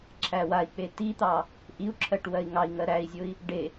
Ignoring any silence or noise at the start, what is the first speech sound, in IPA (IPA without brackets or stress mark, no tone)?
ǁʰ